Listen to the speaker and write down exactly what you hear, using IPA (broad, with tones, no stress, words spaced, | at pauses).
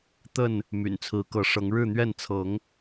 t̪ə˥˨n | my̰˨˩nt͡sʰɹ̩˨˦kɤ˨˦ʂɤ˨˦ŋ ɻɻ̩˥˨n̪ɥɛ˥˨n t͡sʰɤ˨˦ŋ